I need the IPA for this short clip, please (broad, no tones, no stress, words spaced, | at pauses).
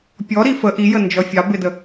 pʲɔ ɾifə ʔijə nd͡ʒɔfʲɑ bɪdə